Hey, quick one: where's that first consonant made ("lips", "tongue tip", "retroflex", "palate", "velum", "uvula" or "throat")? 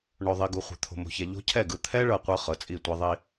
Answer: retroflex